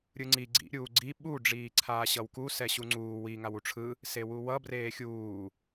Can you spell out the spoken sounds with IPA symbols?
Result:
ɾʲɯŋ͡ǀi ɡ͡ǀḭ ɾʲuːɡ͡ǀi ɓu ɖ͡ʐiːǀʰaːɕʌwku sɛɕuŋ͡ǀuː wi ŋawuʈ͡ʂʰɯ | sewuwʌ breːxʲuː

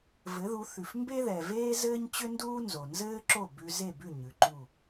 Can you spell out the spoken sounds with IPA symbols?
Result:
vɘ˩˥ðu˩˥θʉ˩f mbe˥ðɛ˩veː˥ zɘː˥ɲt͡ɕʏ˥nduː˥ nzo˩nzɘː˥ǁo˥˩ bʉ˧ze˥˩bʉ˥˩ ɲʉ˩ǃu˥˩

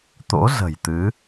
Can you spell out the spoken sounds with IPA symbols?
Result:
t̪o̰˧˥zə̤˨˩jt̪ɨ˨˦

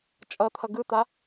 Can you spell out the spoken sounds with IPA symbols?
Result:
t͡ʃʼʌt̪ʰʌ ɡɯt̪a

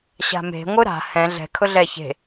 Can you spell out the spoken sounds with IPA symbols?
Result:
ɕa̤me̤ ŋʷɯɾa̤ hɛ̃ ɮɛ̤ kʰʊɮɛ çe̤

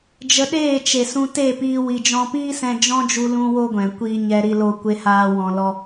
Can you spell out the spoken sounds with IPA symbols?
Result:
d͡ʒə˧ɗeː˦˨t͡ʃe˨sũ˧ te˦˨piː˧ wi˨d͡ʒɔ̃˧piː˦sɛ̃˧ d͡ʒɔ̃˦d͡ʒu˧lũ˧ wo˦ɡʷɛ̃˨ kʷiː˧ ɲɛ˧ɾi˧loː˧ kʷe˧haː˧ wɔ̃˧lɔ˦

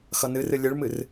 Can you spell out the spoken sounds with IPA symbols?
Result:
xʌnɨrɨ lʲɨɭmɨr

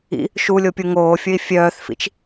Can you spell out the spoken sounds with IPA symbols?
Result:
ḭ | ʃulʲopʲu ŋoːfʲɵi̯ fʲœːθfḭt͡ʃ

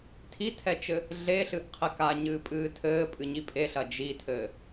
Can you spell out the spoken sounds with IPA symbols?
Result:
tʰitʰɛt͡ʃɘ | ɮeɬɨʔqʰek aɲɨːpʼɨː tʰɘːpʼɨɲi pʼeɬɐ d͡ʒitʰɘː

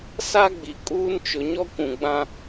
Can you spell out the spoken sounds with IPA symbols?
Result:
sa˦ɡ͡bi˨kʼuː˦n t͡ʃʊ˨ɲɔ˦kʷũ˨ ɡ͡bã˦

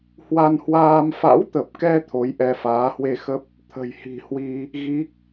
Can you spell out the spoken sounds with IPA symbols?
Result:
hwa˧nhwaː˧m fa̰˧˥wt̪ə˨˩p̚kɛ˧ t̪ʰo˨˦jʔɛ˧faː˨˦ hwe˧xə˦˥p̚ | t̪ʰə̤˨˩jhi̤˨˩hwi˧ | ɣi˦˥k̚

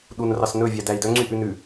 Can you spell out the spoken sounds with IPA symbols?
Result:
ɗunrɑsnɵ vʲædæi̯dœ ŋ͡ǀyʔʉnʉ

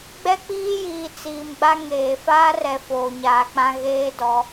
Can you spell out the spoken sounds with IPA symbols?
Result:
ɡ͡bɛ˦k͡piː˦jiː˨ t͡siː˨mɡ͡ba˦ ŋeː˨ faː˦rɛ˨ foː˨ɲaː˨k͡pã˦ ɣeː˦dɔ˨˦

